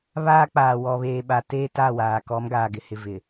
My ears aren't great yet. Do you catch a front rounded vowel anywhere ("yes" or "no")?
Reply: no